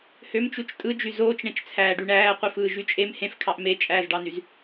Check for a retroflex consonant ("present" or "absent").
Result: present